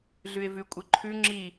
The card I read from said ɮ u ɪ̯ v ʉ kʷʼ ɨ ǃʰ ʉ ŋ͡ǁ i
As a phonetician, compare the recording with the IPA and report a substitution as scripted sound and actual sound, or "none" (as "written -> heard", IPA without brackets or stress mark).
u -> ʉ